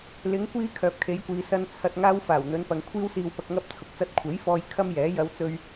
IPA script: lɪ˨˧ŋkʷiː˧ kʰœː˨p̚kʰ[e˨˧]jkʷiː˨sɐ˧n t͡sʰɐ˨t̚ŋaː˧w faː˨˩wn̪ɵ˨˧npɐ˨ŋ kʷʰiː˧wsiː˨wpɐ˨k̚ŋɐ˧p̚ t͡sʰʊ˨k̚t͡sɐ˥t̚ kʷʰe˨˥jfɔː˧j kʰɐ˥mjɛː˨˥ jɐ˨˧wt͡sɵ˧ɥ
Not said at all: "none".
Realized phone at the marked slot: e˨˧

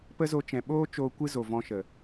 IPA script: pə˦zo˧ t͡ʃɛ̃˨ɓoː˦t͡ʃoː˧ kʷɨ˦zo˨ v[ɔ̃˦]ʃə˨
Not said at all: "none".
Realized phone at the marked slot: ɔ̃˦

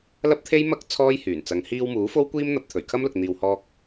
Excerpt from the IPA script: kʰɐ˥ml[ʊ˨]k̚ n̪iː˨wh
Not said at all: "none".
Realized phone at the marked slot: ʊ˨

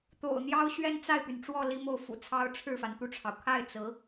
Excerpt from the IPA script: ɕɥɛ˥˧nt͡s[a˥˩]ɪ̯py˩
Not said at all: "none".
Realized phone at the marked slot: a˥˩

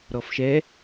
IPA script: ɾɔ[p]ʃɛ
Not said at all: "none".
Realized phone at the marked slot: f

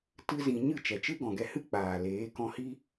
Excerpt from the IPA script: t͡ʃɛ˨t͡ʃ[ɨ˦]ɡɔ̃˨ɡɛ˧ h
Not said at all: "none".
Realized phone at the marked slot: ɨ˦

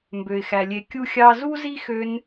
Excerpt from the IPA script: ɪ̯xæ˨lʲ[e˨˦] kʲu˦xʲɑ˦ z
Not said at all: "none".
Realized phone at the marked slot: e˨˦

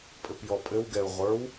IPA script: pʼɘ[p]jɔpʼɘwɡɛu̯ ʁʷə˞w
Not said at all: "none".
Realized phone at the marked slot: p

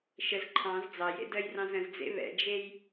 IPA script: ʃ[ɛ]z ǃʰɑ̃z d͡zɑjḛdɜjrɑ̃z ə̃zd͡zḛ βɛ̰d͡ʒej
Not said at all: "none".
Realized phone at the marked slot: ə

